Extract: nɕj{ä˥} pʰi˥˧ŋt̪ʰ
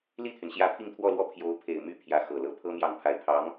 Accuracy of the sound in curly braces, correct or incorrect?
incorrect